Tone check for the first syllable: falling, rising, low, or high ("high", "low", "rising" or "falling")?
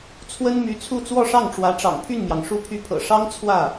high